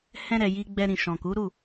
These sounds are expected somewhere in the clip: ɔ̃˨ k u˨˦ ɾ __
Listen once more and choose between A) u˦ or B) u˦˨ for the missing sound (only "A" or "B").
B